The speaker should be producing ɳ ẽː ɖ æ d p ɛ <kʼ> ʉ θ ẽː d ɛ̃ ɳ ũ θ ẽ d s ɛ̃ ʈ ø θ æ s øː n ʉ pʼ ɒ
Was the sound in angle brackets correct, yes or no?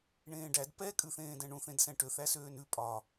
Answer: yes